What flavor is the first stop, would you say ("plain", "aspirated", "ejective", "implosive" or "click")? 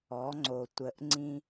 click